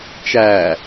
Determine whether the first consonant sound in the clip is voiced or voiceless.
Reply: voiceless